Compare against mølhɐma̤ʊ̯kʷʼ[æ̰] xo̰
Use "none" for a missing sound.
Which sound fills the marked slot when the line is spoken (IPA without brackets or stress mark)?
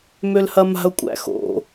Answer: æ̰